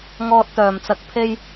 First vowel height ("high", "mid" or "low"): mid